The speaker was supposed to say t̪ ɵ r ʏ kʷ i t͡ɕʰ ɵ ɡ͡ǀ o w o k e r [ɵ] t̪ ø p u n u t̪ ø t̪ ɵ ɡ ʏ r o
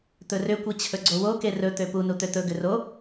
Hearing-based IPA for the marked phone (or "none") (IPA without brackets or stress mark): ɵ